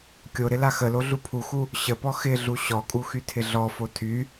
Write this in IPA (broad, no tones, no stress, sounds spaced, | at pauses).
kʲ o ɾ ɪ l a x ə l o ɮ u pʰ u x u | ɕ ə p ɔ x ɪ ɮ u ɕ ɔ kʼ u x y tʰ ɪ ɮ ɔ f o tʰ y